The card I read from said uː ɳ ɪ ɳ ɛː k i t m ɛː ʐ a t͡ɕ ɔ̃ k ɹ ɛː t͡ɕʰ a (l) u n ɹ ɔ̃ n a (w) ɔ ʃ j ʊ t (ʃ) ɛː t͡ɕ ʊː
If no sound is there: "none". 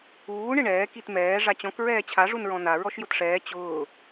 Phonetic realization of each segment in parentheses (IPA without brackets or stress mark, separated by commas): ʐ, ɹ, ʂ